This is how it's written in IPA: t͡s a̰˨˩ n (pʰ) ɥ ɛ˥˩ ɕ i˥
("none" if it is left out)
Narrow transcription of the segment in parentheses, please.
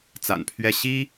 pʰ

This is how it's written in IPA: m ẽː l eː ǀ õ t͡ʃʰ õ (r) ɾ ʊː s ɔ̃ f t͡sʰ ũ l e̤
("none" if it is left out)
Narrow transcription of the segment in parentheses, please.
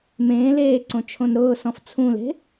n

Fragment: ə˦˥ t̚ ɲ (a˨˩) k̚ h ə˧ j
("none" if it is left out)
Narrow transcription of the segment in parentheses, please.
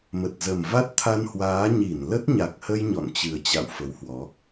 a˨˩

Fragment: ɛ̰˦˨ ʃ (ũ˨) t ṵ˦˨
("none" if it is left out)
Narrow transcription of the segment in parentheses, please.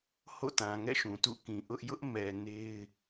ũ˨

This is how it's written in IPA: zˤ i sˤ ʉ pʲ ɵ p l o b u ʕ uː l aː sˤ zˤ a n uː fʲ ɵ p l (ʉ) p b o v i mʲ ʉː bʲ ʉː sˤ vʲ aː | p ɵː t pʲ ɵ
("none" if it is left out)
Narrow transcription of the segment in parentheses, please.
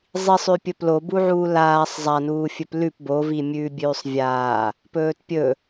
ʉ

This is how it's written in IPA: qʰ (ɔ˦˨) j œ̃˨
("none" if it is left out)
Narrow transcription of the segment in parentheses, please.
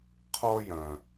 ɔ˦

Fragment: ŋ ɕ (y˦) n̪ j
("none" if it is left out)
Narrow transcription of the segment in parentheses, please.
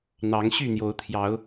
y˥˨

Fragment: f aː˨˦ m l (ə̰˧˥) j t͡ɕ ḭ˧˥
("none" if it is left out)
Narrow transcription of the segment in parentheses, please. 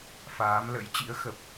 ə̰˧˥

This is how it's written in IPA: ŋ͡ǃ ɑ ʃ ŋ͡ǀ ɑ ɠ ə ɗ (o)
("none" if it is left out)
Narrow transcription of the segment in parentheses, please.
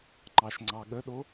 o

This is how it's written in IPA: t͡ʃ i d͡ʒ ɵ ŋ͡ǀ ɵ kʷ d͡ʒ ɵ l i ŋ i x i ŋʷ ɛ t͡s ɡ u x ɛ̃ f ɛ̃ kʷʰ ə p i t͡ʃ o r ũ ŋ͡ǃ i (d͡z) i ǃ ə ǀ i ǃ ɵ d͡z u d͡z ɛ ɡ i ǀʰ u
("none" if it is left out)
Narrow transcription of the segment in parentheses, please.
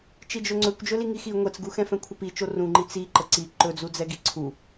t͡s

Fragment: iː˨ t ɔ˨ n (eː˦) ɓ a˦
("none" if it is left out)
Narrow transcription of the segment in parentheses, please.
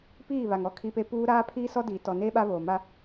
eː˦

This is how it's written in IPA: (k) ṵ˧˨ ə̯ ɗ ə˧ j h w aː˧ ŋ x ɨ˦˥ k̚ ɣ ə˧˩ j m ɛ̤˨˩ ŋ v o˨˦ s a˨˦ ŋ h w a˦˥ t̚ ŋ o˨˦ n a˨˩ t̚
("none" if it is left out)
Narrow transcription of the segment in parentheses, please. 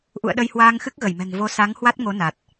ʔ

